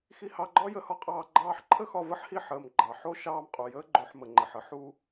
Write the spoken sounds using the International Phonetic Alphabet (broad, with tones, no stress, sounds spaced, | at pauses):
x i˧ h ɑ˧ ɡ͡ǃ ɒ˦ j ə˧ h ɒ˦ qʼ ɑː˧ ɡ͡ǃ ɑː˧ ħ ǃʰ ə˦ x ɒ˧ v ə˦ ħ h i˦˨ ħ əː˨ m ɡ͡ǃ ɑ˨ ħ o˦ ʃ ɑː˧ m qʼ u˨ j əː˦ ɡ͡ǃ o˧ ħ m ə˨ ŋ͡ǃ ə˨ ħ ə˧ ħ u˧